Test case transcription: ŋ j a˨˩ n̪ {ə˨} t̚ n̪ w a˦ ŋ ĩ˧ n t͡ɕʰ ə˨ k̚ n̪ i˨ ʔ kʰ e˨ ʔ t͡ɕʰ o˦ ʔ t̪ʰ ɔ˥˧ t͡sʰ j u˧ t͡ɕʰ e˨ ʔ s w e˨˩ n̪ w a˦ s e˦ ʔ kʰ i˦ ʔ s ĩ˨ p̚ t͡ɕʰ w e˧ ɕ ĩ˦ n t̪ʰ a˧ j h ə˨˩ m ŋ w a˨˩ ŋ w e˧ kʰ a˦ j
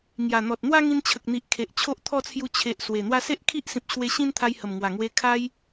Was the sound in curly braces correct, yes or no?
no